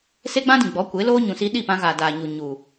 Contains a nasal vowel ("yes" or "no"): yes